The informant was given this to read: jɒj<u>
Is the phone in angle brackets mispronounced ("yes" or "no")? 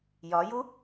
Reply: no